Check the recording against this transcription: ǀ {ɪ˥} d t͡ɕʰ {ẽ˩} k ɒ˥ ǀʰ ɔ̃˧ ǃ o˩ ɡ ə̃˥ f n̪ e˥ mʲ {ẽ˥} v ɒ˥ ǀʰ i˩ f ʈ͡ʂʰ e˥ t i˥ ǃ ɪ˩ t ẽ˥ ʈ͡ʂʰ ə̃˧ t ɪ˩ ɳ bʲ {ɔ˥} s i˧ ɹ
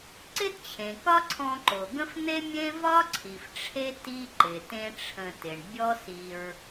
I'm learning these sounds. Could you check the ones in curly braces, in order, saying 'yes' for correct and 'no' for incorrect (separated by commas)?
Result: yes, yes, yes, yes